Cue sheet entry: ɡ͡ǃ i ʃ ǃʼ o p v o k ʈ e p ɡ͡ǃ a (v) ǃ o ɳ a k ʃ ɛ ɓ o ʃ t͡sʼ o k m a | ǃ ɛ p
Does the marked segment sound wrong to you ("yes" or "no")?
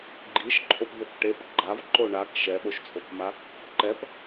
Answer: no